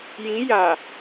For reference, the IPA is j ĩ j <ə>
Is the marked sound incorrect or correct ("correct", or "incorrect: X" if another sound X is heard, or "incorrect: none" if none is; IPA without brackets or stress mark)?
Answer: incorrect: a